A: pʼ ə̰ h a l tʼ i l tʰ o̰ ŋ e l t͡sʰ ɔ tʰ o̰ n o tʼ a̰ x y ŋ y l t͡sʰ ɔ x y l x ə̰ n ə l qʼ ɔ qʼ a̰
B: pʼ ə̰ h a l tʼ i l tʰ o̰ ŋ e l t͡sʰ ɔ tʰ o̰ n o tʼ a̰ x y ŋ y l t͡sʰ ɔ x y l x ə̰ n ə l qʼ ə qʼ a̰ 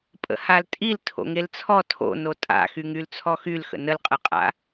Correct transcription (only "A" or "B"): B